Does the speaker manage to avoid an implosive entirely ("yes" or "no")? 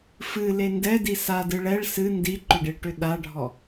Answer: no